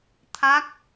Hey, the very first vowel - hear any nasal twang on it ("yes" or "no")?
no